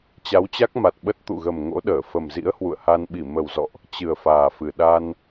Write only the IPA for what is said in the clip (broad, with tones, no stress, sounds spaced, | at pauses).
t͡ɕ a˨˦ w t͡ɕ a˦˥ k̚ m a˨˩ t̚ ɓ ə˦˥ t̚ t̪ ṵ˧˨ ɣ ə˨˩ m ŋ o̰˧˥ ɗ əː˧˩ f ə˨˩ m z ḭ˧˥ ə̯ h w ṵ˧˨ ə̯ h a˧ n ɓ i˧˩ m ə˨˩ w z ɔ̰˧˨ ʔ | t͡ɕ ɨ˨˩ ə̯ f aː˨˩ f ɨ˨˩ ɗ a˧ n